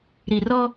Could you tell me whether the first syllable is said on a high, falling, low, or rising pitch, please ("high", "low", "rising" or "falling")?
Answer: low